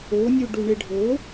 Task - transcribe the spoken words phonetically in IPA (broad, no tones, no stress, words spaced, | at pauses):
onʲu ɖuɳeɖʱo